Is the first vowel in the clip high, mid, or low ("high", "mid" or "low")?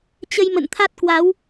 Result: mid